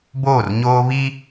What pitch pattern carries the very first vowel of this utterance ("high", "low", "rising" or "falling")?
falling